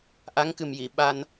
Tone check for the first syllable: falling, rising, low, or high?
rising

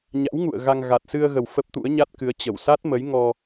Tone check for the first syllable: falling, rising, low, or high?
rising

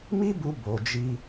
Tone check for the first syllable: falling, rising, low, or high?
high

